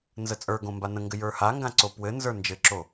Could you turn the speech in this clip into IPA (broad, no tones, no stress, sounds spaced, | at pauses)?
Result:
n z ə t͡sʼ ə˞ ɡ õ m b a n ə̃ ŋ ɡ ɘ j ə˞ h a ŋ ɡ ã ǀ o p w ɘ n z ə˞ n d͡ʒ ɘ ǁ o